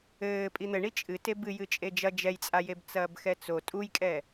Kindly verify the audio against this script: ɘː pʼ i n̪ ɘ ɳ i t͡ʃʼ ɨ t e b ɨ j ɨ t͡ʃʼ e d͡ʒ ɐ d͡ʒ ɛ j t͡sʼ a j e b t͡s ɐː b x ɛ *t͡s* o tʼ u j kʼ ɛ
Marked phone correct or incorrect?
correct